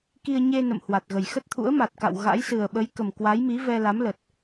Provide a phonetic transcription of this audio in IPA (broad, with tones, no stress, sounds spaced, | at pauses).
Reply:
k i˧ ə̯ ɲ e˧ n ə̰˧˨ m h w a˨˩ t̚ ɣ ə˨˩ j x ə˦˥ t̚ t̪ʰ ṵ˧˥ ə̯ m a˨˩ t̚ k a̰˧˨ w ɣ a̰˧˥ j s ɨ˨˩ ə̯ ɓ ə˨˦ j k ə˨˩ m k w a˨˦ j m i˨˦ v ɛ˧ l a˨˦ m l ə˨˩ t̚